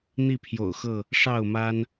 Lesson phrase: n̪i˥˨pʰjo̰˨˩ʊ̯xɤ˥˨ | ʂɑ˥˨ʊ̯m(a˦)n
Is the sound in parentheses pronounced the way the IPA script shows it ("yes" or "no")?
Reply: yes